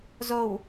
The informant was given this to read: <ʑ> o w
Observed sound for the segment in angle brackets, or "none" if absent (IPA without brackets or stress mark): z